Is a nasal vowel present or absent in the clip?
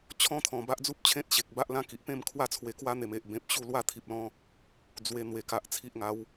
present